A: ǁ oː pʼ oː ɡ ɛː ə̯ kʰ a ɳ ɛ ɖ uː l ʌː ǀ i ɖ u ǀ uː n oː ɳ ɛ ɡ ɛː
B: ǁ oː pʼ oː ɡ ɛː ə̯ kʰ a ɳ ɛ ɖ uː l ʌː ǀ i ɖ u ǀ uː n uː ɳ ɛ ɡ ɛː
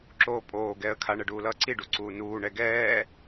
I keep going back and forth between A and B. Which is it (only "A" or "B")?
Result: B